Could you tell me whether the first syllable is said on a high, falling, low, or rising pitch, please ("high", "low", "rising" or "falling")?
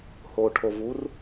low